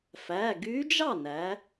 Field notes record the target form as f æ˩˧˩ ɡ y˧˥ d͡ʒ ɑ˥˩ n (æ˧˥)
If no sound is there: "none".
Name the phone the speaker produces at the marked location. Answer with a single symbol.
æ˩˧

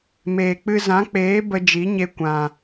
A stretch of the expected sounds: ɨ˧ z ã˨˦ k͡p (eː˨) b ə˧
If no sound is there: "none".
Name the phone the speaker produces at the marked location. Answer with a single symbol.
eː˨˦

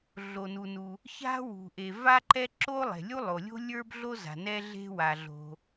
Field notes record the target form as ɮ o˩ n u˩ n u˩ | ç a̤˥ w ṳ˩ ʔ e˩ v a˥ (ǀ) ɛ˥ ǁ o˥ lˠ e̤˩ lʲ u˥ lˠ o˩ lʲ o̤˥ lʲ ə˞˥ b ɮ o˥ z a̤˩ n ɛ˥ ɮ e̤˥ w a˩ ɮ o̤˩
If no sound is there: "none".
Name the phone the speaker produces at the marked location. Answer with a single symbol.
ǃ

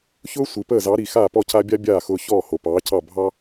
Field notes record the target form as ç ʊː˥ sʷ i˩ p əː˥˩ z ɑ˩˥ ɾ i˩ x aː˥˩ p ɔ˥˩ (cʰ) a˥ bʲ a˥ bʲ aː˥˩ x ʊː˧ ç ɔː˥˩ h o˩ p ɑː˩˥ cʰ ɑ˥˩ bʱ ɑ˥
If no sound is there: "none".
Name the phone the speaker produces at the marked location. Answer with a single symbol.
cʰ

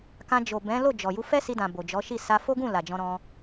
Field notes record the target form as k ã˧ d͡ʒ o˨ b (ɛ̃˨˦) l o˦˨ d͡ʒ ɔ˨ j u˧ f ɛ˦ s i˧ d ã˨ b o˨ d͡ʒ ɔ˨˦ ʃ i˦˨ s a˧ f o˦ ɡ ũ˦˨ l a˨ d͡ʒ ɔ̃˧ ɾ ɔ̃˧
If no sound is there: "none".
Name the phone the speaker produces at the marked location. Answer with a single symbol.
ɛ̃˨˦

